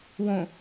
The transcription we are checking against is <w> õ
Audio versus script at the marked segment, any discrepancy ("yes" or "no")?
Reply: no